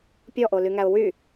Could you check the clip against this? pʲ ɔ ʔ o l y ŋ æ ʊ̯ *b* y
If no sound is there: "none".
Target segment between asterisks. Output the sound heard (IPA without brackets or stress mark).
w